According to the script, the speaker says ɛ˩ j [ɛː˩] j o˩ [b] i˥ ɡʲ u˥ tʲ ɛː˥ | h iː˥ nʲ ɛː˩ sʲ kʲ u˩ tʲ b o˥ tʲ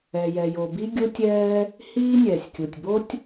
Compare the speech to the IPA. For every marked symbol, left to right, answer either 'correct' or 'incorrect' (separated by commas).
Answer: incorrect, correct